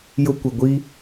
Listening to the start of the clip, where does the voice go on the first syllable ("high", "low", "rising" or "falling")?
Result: high